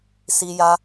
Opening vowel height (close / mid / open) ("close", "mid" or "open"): close